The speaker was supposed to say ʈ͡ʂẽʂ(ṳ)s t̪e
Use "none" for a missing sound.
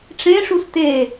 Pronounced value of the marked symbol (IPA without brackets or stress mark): u